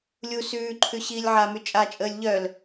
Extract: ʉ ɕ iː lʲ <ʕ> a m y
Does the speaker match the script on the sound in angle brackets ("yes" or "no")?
yes